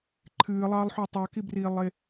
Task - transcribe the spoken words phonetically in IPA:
ǃʰ ɨː lˠ ɑː lˠ ħ u tˤ ɑ k i b r iː lˠ e

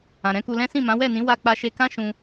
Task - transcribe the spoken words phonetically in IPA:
ã˨ ɾ ɛ̃˨˦ k u˧ l ɛ̃˦ s ĩ˦˨ m ã˨˦ w ɛ˦˨ n ĩ˨˦ w a˦˨ k͡p a˧ ʃ e˧ k ã˦ ʃ ũ˧

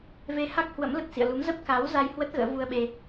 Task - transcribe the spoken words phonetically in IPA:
v e˧ h a˦˥ k̚ h w ə̰˧˥ m l ə˨˩ t̚ s ḭ˧˨ ə̯ l u˨˦ m z ə˦˥ p̚ k a˨˦ w z a˧ j h w ə˦˥ t̚ ɣ ə̰ː˧˥ v u˧ ə̯ ɓ e˧

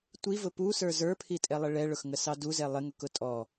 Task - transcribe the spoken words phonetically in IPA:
tʷ i v ʊ p u s ə˞ z ə˞ pʰ i tʼ ɛ lˠ ɪ ɭ ɛ ɭ ʊ x ŋ ə s ɑ d u z ɛ lˠ ɪ ŋ ʊ k ʊ tʼ ɔ

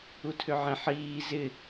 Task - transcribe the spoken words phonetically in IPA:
u tʰ ʏ ʕ ẽ ħ iː z ɪ

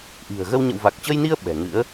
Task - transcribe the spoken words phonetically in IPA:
ʔ i̤˨˩ ə̯ ɣ ə˧ w ɲ ə̰˧˨ w v a˨˩ k̚ t͡ɕ ə˧ j n i˧ ə̯ ɓ ɛ̤˨˩ ŋ ɨ̰˧˥ ə̯

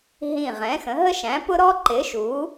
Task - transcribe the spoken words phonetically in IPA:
ɦ ĩ˦˨ ʁ ɛ̃˨˥ x ə̃˨˥ ɦ ə˥ ʃ æ̃˨˥ p ʊ˥ ɾ ɔ˥ ǃ ɪ˨˥ ʃ u˨˥

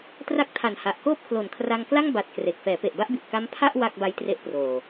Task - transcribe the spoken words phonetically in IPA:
t r a˦˥ k̚ tʰ a˨˩ n h a˨˩ ʔ k oː˥˩ p̚ kʰ l o˨˩ n kʰ r a˧ ŋ k l a˥˩ ŋ b a˨˩ t̚ k r e˨˩ k̚ f ɛː˩˦ p e˨˩ ʔ b a˥˩ ʔ b i˨˩ ʔ k a˦˥ m pʰ a˥˩ ʔ w a˥˩ k̚ b a˦˥ j t r e˦˥ ʔ p r oː˨˩

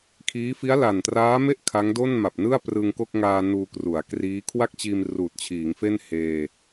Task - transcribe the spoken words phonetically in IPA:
kʰ iː˦˥ f i˦˥ a̯ l a˨˩ n t r aː˦˥ m e˥˩ ʔ kʰ a˦˥ ŋ d o˥˩ n m a˨˩ p̚ n ɯ˥˩ a̯ p r ɯ˧ ŋ k o˥˩ k̚ ŋ aː˧ n uː˧ k r u˩˦ a̯ k r iː˦˥ kʰ w a˥˩ k̚ t͡ɕ iː˧ m r uː˨˩ t̚ t͡ɕʰ iː˩˦ ŋ f e˥˩ n h eː˧

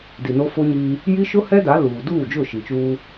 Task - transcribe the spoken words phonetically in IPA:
d i˨ n o˦ f o˦ ɲ iː˦ | j i˦ ʃ ʊ˦ h ɛ˦ d a˨˦ l uː˨ d uː˦˨ d͡ʒ ʊ˦˨ ʃ i˨ t͡ʃ uː˦

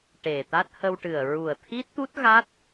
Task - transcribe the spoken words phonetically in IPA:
ʈ e˨˩ t̪ a˦˥ t̚ h ə˧ w ʈ ɨ˨˩ ə̯ ɹ u˨˩ ə̯ t̪ʰ i˦˥ t̚ t̪ u˦˥ t̚ ɣ a˦˥ t̚

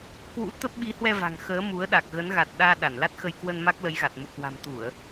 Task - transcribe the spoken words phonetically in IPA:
k w ṵ˧˥ t̪ ə˦˥ p̚ ɓ i˨˦ h w ɛ˧ v a̤˨˩ ŋ x əː˨˦ m u˨˦ ə̯ ɗ a˨˩ k̚ ɣ ə˨˦ n ɣ a˨˩ t̚ ɗ aː˧ ɗ a˧˩ n l a˦˥ t̚ x ə˧ j k w ə˧ n m a˦˥ k̚ l ə˨˦ j ɣ a˨˩ t̚ m ṵ˧˨ k w a̤˨˩ m t̪ u˧˩˨ ə̯

